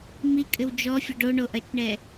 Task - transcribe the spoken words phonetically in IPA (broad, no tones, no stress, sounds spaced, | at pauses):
m i kʼ ɘ w d͡ʒ ɔ fʲ ɘ ɖ o ɳ o ʔ ɐ t͡ʃ ɳ ɛ